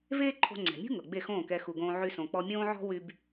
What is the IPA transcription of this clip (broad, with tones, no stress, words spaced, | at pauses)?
veː˥ǃʰo̤˧ŋ͡ǀɛ̤˩mʲṳ˥ ŋɤ˩ɡ͡be˥˩xõː˥˩kɛ˧ xu˩ɡõː˧ʕy˧sõ˩ k͡pɔ˧mʲõː˥ʕɔ̤˥wy˧b